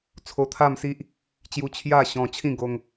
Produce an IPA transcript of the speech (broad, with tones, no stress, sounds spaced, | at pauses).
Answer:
t͡sʰ o˧ t̪ʰ a˥˧ m s i˦ ʔ | t͡ɕ j u˧ t͡ɕʰ j a˥˧ ɕ ɔ̃˧ t͡ɕʰ ĩ˥˧ ɡ o˦ ŋ